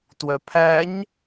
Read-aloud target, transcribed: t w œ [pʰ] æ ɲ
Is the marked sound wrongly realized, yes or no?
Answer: no